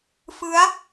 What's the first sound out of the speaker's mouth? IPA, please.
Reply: f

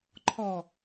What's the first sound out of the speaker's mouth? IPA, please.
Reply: ǃʰ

